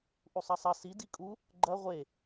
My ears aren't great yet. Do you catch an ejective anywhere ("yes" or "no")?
yes